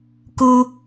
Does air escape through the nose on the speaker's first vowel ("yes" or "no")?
no